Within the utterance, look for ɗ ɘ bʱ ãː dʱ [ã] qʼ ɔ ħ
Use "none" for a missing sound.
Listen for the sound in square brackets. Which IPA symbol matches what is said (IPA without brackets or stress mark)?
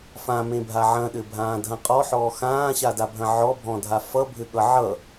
ɐ̃